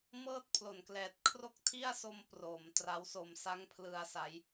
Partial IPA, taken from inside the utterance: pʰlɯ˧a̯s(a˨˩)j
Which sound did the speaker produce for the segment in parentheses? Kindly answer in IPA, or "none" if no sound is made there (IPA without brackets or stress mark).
a˦˥